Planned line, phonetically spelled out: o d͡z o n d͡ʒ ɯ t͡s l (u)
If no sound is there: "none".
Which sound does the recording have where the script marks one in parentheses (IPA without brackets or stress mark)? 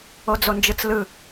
ɯ